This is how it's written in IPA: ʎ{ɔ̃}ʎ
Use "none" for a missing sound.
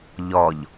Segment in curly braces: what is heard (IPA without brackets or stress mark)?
ɔ